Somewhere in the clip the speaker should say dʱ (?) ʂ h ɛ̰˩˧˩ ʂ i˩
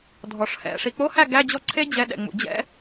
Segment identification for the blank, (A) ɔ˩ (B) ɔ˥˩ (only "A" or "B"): A